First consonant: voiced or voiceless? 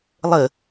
voiced